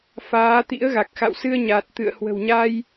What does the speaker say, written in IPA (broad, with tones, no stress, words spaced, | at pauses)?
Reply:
faː˨˦t̪ḭ˧˥ə̯ɣa˨˩k̚ xa̰˧˨wsɨ˧ə̯ ɲa˨˩t̚t̪ɨ̰˧˨ə̯ hwə̤˨˩wɲa˧j